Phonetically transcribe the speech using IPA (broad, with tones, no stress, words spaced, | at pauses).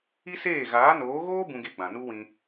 i˦seː˦˨ ɣaː˨˦noː˨˦ɣoː˦ bũ˦ɡe˦ɡ͡bã˨ nu˦wĩ˧